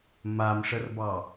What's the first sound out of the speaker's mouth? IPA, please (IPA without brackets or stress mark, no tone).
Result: m